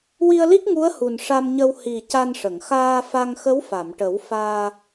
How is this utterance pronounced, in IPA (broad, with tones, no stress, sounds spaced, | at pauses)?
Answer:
w i˧ ə̯ l i˦˥ k̚ ŋ u˧˥ ə̯ h u˨˩ n ʂ a˧ m ɲ ə˧ w h i˨˩ c a˧ n ʂ ə˨˩˨ ŋ x aː˧ f a˧ ŋ x ə˧˥ w f a˨˩˨ m ʈ ə˨˩˦ w f aː˧